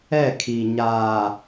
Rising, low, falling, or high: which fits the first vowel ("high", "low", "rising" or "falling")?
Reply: falling